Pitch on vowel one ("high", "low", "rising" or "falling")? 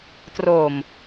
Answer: low